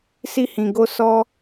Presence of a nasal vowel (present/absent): present